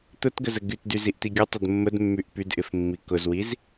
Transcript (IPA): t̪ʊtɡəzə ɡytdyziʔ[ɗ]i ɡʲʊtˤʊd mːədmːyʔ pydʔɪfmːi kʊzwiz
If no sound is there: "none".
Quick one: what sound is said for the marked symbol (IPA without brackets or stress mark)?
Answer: t̪